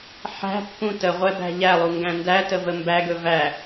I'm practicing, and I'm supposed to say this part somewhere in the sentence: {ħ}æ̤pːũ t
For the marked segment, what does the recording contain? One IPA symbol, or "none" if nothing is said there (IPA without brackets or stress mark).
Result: ħ